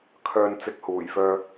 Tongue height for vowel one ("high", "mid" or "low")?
mid